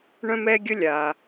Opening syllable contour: high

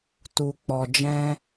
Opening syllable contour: low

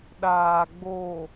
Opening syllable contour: low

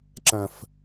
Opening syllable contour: low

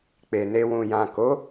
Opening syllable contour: low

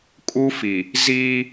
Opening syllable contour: high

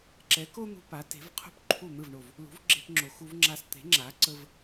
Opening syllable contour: rising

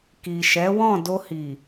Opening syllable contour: low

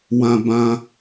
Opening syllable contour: low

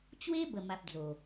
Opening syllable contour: high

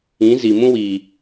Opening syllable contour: rising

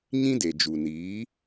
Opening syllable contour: high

